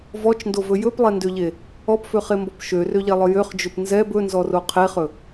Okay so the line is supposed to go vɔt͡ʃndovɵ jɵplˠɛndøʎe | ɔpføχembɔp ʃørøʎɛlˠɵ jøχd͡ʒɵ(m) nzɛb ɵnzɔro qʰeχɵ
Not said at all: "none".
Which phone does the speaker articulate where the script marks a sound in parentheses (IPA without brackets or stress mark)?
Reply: p